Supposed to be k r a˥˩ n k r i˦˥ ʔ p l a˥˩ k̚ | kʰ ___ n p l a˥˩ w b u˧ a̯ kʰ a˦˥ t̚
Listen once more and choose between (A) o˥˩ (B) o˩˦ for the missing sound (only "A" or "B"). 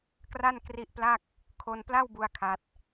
A